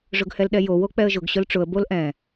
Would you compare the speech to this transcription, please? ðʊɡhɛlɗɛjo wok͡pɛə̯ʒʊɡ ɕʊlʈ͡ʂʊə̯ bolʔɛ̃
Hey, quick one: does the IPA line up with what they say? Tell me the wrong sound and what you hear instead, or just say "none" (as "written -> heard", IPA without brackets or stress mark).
ð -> ʐ